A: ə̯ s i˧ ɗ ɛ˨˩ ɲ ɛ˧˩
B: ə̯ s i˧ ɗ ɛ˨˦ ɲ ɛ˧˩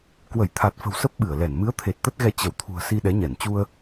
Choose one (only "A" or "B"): B